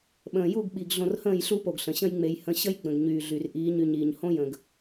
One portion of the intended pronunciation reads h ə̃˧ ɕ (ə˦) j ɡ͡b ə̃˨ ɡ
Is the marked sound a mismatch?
no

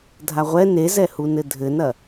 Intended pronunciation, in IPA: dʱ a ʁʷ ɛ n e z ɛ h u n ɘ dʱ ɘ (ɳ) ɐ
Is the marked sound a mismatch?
yes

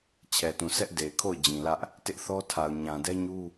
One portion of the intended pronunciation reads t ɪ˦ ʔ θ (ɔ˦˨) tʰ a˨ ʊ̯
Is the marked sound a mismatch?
yes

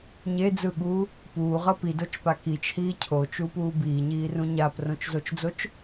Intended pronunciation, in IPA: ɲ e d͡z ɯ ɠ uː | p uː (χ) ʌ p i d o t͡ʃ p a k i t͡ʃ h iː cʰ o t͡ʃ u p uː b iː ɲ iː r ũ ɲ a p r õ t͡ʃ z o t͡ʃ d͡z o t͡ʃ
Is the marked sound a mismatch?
yes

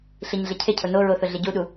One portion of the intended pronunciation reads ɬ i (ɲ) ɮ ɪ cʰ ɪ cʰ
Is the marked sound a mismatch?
no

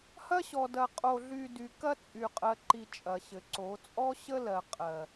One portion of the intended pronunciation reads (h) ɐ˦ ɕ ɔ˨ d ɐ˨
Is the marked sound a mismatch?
no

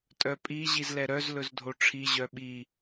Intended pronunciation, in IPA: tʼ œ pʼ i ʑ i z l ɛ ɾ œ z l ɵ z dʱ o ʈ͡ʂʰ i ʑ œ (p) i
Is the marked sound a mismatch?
yes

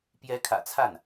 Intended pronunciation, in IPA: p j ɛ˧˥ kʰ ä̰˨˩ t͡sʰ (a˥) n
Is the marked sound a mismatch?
yes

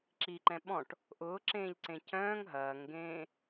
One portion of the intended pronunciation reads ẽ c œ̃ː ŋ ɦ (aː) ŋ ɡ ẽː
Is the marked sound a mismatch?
yes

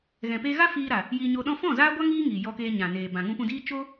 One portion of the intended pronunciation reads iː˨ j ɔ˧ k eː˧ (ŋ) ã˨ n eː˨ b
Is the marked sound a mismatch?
yes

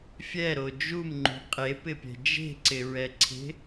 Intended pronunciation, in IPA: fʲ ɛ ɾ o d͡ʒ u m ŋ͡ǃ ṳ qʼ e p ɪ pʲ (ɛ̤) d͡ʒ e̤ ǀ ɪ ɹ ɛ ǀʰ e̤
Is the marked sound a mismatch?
no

